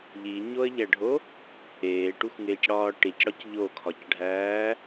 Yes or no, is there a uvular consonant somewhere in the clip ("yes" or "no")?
no